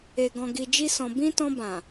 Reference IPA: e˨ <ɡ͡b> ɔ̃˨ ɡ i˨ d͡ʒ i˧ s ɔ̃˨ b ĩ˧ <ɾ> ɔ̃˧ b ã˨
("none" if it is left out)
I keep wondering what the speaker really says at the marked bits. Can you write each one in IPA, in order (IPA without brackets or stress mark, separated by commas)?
ɡ, t